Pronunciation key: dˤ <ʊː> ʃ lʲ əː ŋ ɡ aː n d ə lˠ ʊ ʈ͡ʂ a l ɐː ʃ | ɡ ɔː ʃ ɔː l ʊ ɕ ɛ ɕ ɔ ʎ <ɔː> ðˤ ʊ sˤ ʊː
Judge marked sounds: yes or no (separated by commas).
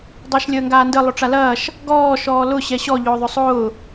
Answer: no, no